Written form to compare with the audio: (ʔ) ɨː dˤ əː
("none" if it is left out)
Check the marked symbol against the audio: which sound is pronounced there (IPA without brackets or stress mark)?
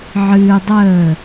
ʕ